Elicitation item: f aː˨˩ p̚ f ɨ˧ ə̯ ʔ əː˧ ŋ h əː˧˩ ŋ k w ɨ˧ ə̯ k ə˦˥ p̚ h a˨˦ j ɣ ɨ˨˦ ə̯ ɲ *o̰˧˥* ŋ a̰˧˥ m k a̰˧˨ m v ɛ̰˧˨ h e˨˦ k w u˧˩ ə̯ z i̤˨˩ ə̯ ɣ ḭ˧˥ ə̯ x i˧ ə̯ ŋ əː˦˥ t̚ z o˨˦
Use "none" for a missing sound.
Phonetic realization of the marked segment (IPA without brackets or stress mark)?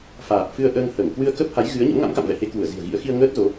o̰˧˥